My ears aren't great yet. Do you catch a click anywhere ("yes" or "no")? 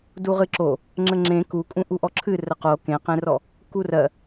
yes